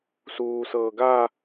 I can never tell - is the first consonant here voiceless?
yes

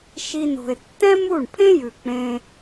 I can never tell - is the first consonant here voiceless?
yes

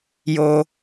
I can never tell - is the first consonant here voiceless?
no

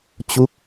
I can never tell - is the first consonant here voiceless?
yes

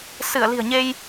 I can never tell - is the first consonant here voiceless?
yes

